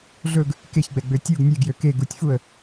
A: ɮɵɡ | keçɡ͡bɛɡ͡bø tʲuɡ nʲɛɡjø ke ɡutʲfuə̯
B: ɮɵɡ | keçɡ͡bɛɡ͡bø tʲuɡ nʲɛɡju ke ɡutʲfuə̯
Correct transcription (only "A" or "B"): A